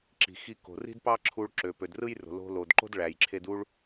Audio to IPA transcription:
ǁ i̤˩ x i˧ k o̤˩ r i̤˥ d p ɑ˥ ǁʰ u˧ ɭ ǁ ø˩ p ø˩ d r ɯ˥ j r o̤˩ l o̤˧ l o˩ d ǃ o̤˥ d ɭ æ˩ j ǁʰ e˧ d u˥ ɭ

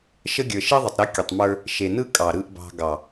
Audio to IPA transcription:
ʃ ə˦ ɡʲ ə˞˨ ʃ i˦ ðˤ ə˨ tˤ ɾ ɨ˨˦ kʲ ə˨ tˤ m ə˞˦ | ʃ e˨ n ɯ˦ kʼ ɑ˨ ɾ ɯ˨ ʔ b ɑ̤˨ ɡ ɑ˨

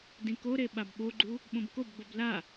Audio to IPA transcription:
d ĩ k o ɾ e ɓ a b ɓ o ɡ͡ǃ u | ɓ õ b k o b ɡ͡b o b l a

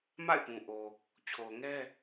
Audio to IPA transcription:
m a̰˦˨ ɪ̯ p ũ˨ ʔ o˨ | t͡ɕʰ o˨ ʊ̯ ŋ ɛ˦

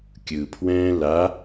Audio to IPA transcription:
kʲ ɯ pʰ w ɛ̃ː l a

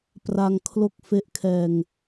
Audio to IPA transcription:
p r a˧ ŋ kʰ l o˥˩ k̚ f e˥˩ ʔ kʰ ɛː˧ ŋ

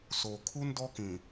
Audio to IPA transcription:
s o˨ kʰ u˦ n d ɔ˦ k ĩ˨

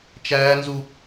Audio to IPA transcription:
t͡ʃ æː˦ n z u˦

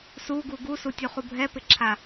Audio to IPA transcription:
s u ɡ u ɡ u s u tʲ u χ u bʱ ɛ p ɪ ǁʰ a

